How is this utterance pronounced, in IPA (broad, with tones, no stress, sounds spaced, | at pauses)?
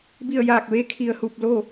b i˧˩ ə̯ j aː˧˩ k̚ ʋ e˧˥ kʰ i˩ ə̯ h u˧˩ p̚ l o˥˨